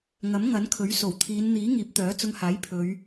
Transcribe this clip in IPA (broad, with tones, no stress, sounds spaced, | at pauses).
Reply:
ŋ ɐ˨˥ m ŋ ɐ˨˥ n kʰ ɵ˨˥ ɥ s o˨˩ w t̪ʰ iː˨˧ n n̪ iː˨˥ ŋ iː˨˥ p̚ t̪ œː˨˥ t͡s ʊ˧ ŋ h aː˨˥ j pʰ ɵ˨˧ ɥ